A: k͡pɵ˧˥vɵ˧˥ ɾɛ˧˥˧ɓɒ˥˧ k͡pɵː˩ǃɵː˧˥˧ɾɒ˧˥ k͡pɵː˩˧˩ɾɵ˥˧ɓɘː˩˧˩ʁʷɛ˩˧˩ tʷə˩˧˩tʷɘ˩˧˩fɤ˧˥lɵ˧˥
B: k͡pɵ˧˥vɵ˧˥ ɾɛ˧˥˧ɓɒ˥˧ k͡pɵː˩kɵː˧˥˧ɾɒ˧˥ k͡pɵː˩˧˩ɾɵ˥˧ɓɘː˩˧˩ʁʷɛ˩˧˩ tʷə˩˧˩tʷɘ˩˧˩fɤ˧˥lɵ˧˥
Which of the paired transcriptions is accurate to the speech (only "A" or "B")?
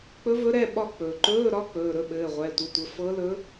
A